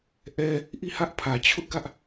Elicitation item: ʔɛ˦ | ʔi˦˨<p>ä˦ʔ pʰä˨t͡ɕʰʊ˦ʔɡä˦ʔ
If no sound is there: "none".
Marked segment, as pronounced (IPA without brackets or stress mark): h